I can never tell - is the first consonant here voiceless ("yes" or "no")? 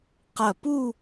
yes